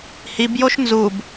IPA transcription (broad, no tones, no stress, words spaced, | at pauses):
hibjoʃ nzub